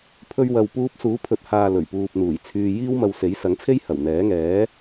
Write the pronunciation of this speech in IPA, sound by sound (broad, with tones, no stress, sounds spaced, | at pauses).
pʰ ɵ˧ ɥ w ɐ˨ w p uː˧ p̚ s uː˨˥ pʰ ɵ˨ t̚ h aː˨ l ɵ˨˩ ɥ p uː˨ p̚ n̪ uː˨˩ j t͡sʰ yː˧ j iː˥ w m ɐ˧ w s e˨˥ j s ɐ˨˥ ŋ t͡sʰ e˥ j h ɐ˨˩ w n̪ ɛː˨˥ ŋ ɛː˨˥